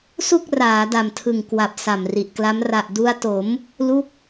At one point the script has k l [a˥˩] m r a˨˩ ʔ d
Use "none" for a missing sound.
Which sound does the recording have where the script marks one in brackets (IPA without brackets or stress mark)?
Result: a˦˥